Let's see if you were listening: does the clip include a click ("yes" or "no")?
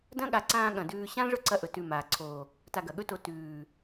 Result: yes